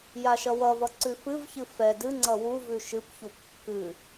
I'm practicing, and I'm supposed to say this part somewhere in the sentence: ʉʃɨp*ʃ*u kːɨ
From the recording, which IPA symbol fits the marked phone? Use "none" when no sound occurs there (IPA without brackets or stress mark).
ç